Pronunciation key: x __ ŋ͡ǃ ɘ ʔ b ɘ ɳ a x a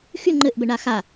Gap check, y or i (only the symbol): y